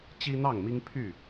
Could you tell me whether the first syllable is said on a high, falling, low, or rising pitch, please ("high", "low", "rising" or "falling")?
high